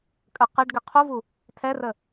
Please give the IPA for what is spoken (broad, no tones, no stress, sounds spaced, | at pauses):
kʼ ə q ɘ ɖ ɡ ɘ qʰ u v u | tʰ ɛ r ə